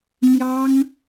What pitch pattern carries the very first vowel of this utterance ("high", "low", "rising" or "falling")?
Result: high